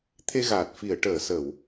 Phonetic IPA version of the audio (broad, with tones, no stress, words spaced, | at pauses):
t̪ʰe˧ɣaː˨˩t̚ fi˨˩˨ə̯ʈəː˨˩˨sə˨˩˨w